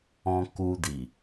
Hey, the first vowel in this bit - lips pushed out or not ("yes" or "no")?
yes